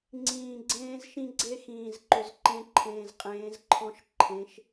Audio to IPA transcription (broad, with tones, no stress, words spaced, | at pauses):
ŋ͡ǀĩː˨ɡ͡ǀẽː˦z ʃĩ˦ɡ͡ǀe˦xĩː˨zǃʏ˨z ǃẽ˦ǃʰẽː˨zqʼẽː˨˦zǃʰɔ̃˦ʃ ǃʰẽ˨˦ʃ